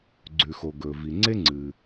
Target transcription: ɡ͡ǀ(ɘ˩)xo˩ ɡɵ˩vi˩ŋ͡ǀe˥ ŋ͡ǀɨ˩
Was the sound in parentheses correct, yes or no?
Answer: no